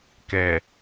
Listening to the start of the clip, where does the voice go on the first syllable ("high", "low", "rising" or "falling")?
low